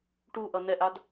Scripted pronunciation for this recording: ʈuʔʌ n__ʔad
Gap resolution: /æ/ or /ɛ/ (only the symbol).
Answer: ɛ